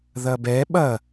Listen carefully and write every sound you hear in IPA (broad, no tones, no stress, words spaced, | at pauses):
ðɐbɛ ɓɐ